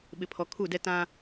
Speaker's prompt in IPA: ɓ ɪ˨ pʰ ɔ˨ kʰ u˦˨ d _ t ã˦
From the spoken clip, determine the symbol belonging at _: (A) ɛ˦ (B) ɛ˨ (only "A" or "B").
A